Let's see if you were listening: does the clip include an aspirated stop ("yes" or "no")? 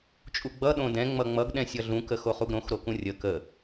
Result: no